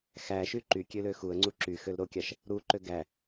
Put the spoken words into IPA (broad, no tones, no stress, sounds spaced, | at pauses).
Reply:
x æ ʃ y ǃ y kʲ ø l ø x u ə̯ ŋ͡ǀ u ǁ y x ø l ɾ o kʲ ɑ ʃ | ɾ u ǃ ø ɡ æ